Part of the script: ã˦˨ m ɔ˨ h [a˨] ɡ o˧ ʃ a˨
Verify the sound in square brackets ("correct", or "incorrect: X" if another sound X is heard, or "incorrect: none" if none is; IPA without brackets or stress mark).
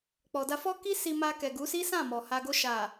correct